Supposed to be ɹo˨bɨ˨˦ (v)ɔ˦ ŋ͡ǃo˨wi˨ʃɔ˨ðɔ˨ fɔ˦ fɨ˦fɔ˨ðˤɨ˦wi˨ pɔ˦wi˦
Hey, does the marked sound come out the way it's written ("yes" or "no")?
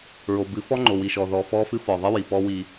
no